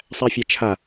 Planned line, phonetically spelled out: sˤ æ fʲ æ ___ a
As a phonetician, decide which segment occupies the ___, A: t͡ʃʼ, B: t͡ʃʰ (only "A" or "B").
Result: B